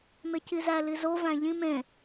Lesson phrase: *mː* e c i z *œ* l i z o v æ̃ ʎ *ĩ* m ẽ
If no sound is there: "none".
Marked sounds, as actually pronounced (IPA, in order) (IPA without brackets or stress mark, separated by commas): m, æ, ĩ